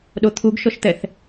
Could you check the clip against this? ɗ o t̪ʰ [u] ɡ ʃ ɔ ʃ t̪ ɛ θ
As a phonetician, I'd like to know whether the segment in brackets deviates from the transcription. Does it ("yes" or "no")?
no